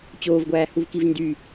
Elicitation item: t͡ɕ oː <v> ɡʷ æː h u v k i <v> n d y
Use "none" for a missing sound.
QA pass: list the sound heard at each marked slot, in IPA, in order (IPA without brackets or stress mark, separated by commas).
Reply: v, v